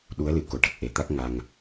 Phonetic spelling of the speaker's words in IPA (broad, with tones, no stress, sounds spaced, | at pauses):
ɗ u˧˥ ə̯ l ɨ˨˩˨ k o˨˩˨ ʈ ə˨˩ k̚ ʔ e˨˩ t̪ a˦˥ k̚ ŋ a˧ ŋ